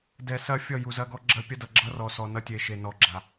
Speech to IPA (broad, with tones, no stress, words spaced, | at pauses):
dɛ˨sɐ˦ fʲʌ˦˨ju˨zɐ˦ɡɔ˦ ɡ͡ǁɐ˦pʲɐ˦dʌ˨ ɡ͡ǁʌ˦rɔ˨sɔ˨ nʌ˦ tʲe˨ʃe˨nɔ˨ ɡ͡ǁa˨